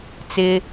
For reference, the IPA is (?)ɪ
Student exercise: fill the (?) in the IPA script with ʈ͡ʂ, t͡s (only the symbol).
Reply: t͡s